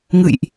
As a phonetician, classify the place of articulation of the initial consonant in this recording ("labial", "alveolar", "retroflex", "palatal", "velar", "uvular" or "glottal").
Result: velar